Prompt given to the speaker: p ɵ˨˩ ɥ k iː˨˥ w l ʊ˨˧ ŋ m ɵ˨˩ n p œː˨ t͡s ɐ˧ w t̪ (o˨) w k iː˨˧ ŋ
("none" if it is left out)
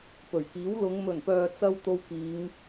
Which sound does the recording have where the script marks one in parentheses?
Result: o˧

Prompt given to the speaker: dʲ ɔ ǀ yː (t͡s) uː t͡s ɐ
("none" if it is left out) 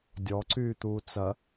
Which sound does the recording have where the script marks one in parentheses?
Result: t̪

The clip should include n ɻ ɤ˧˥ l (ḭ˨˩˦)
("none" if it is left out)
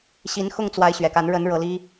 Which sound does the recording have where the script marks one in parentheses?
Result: i˥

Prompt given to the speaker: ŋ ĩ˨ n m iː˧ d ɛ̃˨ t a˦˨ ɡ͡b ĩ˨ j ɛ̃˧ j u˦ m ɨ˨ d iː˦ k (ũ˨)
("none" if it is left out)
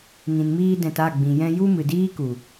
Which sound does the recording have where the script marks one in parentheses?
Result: u˨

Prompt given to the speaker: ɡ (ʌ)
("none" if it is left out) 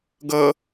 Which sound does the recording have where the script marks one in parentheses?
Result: ʌ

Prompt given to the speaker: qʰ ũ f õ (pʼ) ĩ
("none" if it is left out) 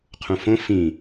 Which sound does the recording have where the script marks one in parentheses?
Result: f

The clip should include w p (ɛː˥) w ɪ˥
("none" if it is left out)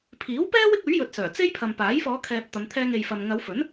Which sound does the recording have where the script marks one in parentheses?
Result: ɛː˥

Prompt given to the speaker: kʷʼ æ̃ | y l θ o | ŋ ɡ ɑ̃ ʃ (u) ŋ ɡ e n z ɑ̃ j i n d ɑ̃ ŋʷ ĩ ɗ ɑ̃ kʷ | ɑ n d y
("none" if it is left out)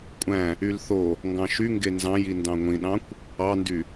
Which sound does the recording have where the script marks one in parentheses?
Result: y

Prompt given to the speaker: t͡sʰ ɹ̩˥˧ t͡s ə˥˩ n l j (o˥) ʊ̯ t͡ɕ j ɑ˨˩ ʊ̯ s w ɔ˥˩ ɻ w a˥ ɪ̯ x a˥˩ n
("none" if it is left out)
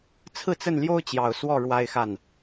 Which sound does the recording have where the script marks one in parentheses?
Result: o˥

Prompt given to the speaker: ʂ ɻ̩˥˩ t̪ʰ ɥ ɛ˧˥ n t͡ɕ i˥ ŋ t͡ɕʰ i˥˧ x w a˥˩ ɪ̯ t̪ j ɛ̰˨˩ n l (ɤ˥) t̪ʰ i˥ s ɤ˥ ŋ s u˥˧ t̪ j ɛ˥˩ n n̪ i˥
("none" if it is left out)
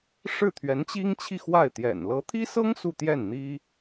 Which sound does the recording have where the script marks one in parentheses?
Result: ɤ˧˥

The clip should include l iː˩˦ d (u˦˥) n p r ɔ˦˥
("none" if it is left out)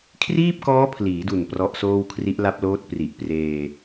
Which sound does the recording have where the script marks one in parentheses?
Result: u˨˩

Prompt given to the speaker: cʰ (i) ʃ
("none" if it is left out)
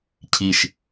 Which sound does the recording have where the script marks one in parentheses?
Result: i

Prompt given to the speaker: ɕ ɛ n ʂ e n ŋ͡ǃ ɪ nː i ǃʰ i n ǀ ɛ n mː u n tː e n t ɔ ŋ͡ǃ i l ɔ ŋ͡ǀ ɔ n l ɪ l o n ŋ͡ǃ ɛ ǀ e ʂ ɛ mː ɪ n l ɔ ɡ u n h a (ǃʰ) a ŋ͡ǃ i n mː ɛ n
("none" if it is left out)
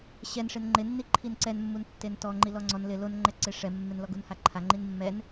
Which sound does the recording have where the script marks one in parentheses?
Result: ǃʰ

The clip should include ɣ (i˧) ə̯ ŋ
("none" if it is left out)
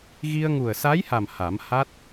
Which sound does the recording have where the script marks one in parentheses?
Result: i˧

